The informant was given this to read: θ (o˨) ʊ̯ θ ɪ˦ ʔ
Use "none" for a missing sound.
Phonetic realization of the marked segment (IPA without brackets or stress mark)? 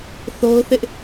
o˦